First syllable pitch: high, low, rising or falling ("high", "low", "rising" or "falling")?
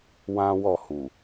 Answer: high